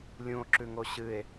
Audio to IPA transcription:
lʲ ũ o̯ ǁ ʉ ŋ o ɕ ɨ e̯

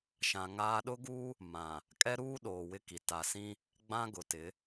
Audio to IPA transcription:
ʃ ã˨ ŋ aː˦ ɗ ʊ˦ ɡ uː˦ | m ã˨ | kʼ ɛ˦ ɾ uː˦ ɗ oː˨ w ɪ˦ k i˨ t a˨ s ĩ˦ | ɡ͡b ã˦ ɡ ʊ˨ t ɪ˨˦

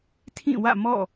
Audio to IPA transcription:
tʰ ĩ˦˨ w ä̰˦˨ m ɔ̰˦˨

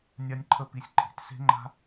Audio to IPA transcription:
nʲ a˦ nʲ ǃʰ ə˦ p i˧ sʲ ǃʼ i̤˨ t s e̤˦ ŋ͡ǃ a̤˦

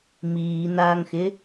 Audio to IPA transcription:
m iː n̪ aː ŋ x ɪ

